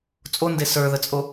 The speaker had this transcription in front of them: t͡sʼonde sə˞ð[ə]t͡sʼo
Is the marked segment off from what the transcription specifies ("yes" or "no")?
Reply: no